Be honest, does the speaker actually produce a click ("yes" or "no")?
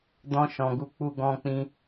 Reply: no